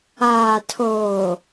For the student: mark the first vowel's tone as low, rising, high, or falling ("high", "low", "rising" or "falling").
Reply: low